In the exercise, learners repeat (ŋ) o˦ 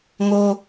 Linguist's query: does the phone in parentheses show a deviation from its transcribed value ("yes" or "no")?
no